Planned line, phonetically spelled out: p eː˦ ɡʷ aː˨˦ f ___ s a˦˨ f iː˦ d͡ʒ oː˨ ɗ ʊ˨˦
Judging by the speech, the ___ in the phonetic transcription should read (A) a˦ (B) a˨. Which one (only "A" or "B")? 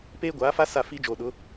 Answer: A